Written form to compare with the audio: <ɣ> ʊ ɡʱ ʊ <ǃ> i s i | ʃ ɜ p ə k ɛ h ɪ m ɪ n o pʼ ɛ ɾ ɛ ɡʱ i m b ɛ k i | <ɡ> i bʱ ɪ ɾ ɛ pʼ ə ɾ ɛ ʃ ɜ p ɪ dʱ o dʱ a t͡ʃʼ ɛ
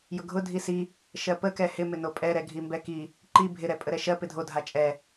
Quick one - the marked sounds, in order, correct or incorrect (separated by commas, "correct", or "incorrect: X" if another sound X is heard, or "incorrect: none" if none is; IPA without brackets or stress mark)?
incorrect: j, incorrect: dʱ, incorrect: ǃ